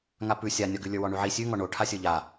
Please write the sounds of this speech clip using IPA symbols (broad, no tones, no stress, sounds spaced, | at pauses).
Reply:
ŋ a p ʉ sʲ a nʲ ɒ ɡ ʉ lʲ ə˞ w ɔ ɳ ʉ ʕ i sʲ ʉ ŋ ɔ ɳ o ʈʰ a sʲ ə˞ ʎ a